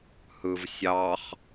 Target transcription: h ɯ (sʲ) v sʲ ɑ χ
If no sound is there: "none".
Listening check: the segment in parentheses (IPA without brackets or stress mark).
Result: none